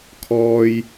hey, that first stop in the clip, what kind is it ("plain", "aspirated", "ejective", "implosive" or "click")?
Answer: aspirated